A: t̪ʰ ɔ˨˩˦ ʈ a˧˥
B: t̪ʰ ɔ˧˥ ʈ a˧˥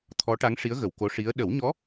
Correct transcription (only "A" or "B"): B